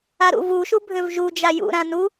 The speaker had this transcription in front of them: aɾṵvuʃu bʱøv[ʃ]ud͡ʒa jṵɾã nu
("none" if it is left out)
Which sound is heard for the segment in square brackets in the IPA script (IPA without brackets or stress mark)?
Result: ʒ